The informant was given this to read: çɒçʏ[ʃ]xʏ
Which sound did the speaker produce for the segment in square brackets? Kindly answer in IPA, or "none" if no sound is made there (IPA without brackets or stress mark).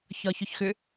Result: ç